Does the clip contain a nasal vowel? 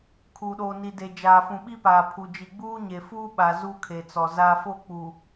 yes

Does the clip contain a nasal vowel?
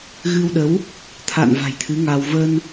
no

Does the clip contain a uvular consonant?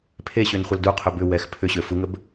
yes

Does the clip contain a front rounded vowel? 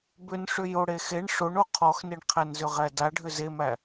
yes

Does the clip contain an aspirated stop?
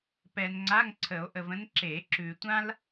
yes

